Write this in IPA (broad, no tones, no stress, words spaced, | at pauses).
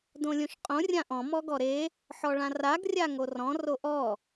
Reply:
dõlʲõʃqʼõ rʲãʔɔ̃ mɔɡɔɾe | ħɔɭãraɡ rʲaŋorɔ̃ roʔɔ